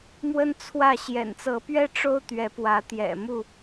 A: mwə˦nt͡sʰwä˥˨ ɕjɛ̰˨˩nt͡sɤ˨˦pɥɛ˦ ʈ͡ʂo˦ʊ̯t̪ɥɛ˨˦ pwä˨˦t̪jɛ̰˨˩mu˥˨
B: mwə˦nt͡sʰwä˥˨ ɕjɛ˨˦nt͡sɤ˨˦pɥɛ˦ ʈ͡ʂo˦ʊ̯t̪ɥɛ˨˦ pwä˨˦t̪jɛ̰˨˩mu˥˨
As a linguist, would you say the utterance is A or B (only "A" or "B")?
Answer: A